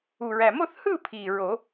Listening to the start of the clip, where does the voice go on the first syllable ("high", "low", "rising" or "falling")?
low